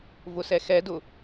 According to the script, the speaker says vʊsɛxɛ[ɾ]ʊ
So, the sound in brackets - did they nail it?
no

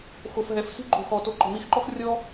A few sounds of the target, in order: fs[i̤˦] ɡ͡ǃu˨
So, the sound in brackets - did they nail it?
yes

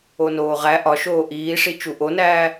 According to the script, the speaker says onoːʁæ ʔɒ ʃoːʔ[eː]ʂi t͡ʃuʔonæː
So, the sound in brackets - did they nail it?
no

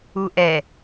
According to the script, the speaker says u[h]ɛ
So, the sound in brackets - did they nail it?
no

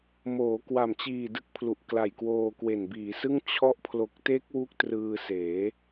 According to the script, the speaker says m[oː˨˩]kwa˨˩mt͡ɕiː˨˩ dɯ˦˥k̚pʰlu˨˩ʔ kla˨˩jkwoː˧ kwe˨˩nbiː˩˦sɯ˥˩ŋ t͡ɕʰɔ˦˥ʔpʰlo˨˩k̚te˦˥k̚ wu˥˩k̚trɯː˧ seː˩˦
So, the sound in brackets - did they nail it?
no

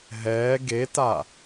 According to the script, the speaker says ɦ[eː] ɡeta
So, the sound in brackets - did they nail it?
no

